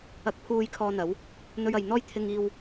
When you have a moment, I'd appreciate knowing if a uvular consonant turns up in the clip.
no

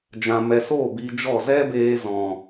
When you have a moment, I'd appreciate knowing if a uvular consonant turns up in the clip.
no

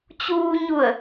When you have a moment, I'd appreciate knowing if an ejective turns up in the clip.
no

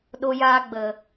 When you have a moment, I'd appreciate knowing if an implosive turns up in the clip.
yes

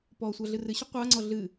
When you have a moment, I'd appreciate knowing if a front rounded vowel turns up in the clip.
no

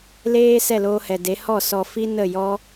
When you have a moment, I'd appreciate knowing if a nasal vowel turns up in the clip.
no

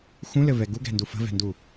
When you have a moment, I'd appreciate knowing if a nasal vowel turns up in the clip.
yes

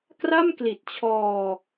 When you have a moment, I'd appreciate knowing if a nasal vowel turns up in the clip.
no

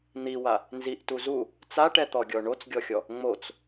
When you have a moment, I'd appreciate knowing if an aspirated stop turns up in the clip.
no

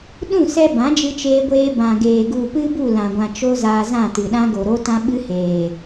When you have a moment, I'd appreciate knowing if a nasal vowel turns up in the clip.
yes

